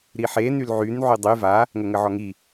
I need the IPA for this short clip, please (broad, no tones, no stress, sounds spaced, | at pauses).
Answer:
ɾ i ħ e n y l ʕ y n ʕ y dˤ y v a | ŋ ə ŋ ə ʕ ɔ ŋ i